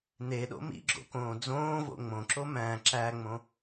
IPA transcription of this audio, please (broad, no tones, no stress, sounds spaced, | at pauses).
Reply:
n e ɗ o̰ m ḭ ɡ͡ǁ o̰ k õː d͡z õː v o̰ ŋ͡m õ ǁ o m æ̃ ǁ æ ŋ͡m õ